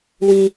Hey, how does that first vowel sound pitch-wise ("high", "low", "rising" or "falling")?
low